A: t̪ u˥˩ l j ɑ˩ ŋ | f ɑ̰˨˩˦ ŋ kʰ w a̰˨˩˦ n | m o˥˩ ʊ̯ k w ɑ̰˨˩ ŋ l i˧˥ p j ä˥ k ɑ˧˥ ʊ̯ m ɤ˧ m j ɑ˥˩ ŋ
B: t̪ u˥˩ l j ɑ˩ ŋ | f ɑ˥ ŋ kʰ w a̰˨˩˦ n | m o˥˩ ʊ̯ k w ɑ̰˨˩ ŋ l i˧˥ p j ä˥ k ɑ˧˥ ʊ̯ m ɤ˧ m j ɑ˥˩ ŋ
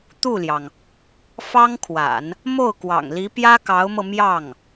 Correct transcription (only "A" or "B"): B